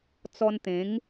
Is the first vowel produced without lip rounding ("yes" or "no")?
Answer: no